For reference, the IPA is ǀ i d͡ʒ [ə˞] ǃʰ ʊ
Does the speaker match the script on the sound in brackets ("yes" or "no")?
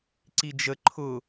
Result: no